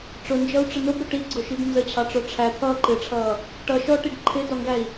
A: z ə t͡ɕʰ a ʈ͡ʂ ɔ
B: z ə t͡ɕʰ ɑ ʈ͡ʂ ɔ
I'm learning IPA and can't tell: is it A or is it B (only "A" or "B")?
B